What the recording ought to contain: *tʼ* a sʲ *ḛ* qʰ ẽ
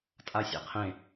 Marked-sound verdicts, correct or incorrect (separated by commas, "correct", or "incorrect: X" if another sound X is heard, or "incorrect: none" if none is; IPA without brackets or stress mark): correct, correct